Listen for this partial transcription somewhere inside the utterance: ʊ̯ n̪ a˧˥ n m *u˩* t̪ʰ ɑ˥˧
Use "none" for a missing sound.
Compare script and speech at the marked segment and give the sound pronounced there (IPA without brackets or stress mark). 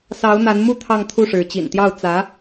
u˥